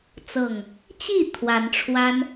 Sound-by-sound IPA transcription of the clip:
t͡s ɤ˨˩ ŋ | t͡ɕ i˥˨ t̪ʰ w a˨˦ n ʈ͡ʂʰ w a˦ n

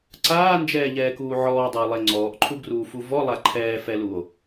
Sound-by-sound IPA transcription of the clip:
ǀ aː n d͡ʒ ɛː ʎ ɛː k uː ʕ ɔː dˤ ʊː lˠ e ŋ͡ǀ ɔː ʔ ǃʰ u ɡ r uː f u v ɔ lˠ a ǃʰ ɛː f ɛ l u o̯

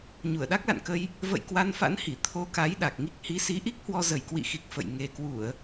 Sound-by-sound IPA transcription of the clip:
ɲ u˧˩ ə̯ ɗ a˦˥ k̚ l a̰˧˨ n k ə˧ j | v ə̰˧˨ j k w a˧ n f a̰˧˥ n h i˧˩ t̪ʰ o˧ k a˨˦ j ɗ a˨˩ k̚ ŋ i˦˥ k̚ h i˨˦ s i˨˦ ʔ i˦˥ k̚ h w ɔ˧ z ə˨˩ j k w ḭ˧˨ x i˨˩ k̚ f ə̰˧˨ j ŋ e˨˩ k w u˧˩˨ ə̯

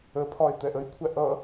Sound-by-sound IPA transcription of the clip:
ə pʰ ɒ e̯ t̪ ɛ ʔ ə j kʷʰ æ ʔ ʌ

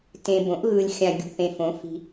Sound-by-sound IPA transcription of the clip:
t ẽ˨ b õ˩˥ ʔ ɣ ɯ˨ lʲ xʲ ã˨ ɡʲ ṳ˨ θ ẽ˨ f õ˩˥ f i̤˨

